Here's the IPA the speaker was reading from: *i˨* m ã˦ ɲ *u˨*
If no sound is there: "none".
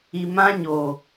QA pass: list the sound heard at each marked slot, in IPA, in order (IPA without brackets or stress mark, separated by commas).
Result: i˨, o˨